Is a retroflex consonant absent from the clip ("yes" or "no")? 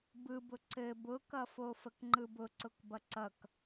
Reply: yes